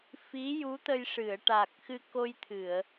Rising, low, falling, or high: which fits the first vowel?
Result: rising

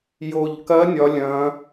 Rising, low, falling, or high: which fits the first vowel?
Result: low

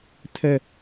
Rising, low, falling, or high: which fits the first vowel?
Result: high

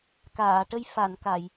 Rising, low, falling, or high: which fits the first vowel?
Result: low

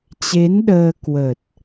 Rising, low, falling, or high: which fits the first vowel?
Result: rising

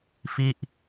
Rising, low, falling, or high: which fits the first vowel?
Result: falling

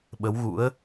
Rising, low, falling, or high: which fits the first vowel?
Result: rising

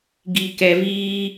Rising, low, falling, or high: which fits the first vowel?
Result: low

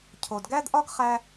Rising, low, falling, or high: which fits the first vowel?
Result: low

